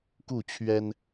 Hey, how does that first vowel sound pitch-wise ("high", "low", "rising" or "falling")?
falling